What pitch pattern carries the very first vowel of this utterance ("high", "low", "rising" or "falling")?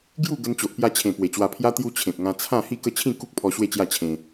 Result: falling